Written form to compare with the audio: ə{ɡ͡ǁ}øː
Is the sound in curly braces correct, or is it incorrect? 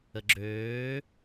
correct